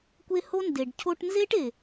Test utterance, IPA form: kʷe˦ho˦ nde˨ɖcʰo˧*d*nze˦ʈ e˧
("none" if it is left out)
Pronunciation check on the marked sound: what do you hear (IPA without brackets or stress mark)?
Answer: ʈ